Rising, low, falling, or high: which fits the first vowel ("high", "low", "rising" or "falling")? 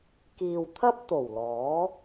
low